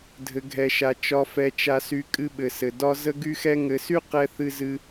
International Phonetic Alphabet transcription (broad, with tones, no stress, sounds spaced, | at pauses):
dʱ ɘ˧ ɡʱ ɛ˧ ʃ a˧ t͡ʃ ɒ˧ f ɛ˧ t͡ʃ a˧ s y˧ kʼ ɨ˥ ɓ ɘ˧ s ɘ˧ d ɒ˥ z ə˥ ɡ y˥ x ɛ˥ ŋ ɘ˧ s y˥ q ɛ˥ θ ɨ˥ z ɨ˥